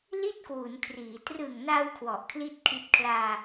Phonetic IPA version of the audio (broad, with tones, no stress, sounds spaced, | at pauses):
l i˥˩ t̚ k w u˩˦ n kʰ r iː˩˦ t r ɯ˨˩ ŋ n a˧ w kʰ w ɔ˨˩ ʔ kʰ l i˥˩ t̚ kʰ i˦˥ t̚ kʰ l aː˧